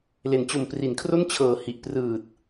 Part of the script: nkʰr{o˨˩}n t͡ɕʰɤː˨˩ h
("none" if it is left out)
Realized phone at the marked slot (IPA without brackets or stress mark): o˥˩